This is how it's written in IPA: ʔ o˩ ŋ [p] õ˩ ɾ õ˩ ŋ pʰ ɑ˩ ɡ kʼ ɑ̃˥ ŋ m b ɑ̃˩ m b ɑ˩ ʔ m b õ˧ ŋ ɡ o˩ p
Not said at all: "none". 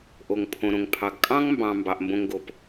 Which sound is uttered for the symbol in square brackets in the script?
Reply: pʰ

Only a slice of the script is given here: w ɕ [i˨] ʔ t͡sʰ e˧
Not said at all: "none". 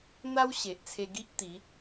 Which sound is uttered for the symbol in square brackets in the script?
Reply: e˨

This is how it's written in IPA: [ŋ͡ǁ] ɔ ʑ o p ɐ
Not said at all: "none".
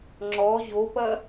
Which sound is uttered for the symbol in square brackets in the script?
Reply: ŋ͡ǁ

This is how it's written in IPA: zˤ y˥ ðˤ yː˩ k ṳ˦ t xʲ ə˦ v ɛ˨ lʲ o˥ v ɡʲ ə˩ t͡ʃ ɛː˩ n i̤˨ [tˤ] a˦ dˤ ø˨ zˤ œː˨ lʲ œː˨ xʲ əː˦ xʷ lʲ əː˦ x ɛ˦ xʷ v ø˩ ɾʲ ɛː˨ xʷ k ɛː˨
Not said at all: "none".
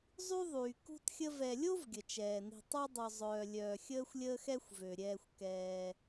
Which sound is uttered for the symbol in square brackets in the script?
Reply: tˤ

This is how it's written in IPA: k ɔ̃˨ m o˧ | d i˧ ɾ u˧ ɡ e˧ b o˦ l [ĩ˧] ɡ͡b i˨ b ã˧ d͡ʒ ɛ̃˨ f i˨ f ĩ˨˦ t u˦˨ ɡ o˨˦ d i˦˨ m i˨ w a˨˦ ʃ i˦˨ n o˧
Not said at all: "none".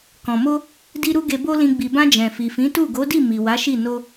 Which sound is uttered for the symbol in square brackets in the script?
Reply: ĩ˧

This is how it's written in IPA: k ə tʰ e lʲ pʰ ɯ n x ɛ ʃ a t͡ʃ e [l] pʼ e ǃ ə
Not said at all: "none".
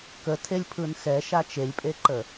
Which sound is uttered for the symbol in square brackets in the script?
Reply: lʲ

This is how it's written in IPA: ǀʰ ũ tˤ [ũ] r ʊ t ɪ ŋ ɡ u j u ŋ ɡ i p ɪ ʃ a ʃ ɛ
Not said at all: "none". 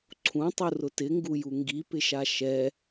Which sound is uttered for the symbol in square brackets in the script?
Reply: u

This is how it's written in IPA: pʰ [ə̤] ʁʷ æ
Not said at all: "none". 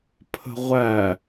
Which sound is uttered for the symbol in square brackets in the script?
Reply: ə̤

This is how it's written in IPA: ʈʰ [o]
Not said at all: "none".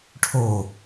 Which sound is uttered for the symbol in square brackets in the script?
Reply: o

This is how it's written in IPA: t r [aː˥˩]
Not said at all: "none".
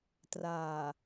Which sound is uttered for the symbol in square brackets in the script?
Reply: aː˨˩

